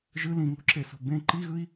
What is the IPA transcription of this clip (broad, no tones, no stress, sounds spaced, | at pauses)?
ʒ ɯ l ĩ ŋ o̤ ǁ e s o̤ b ẽ ǃ i ɣ ɯ i̯